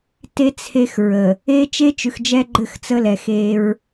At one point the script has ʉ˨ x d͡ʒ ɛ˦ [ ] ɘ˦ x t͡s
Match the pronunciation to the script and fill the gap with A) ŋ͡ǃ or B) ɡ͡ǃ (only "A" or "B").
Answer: B